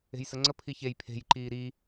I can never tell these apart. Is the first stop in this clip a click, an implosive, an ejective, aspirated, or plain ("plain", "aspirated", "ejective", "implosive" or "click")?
click